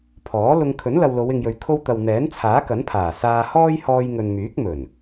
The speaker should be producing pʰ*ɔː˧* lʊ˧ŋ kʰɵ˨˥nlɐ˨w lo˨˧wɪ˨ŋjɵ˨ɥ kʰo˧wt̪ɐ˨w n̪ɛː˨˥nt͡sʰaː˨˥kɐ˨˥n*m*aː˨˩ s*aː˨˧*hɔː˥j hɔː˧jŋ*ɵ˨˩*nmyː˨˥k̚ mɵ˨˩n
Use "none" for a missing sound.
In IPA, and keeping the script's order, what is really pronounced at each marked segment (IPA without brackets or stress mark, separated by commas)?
ɔː˨˥, pʰ, aː˧, ɵ˨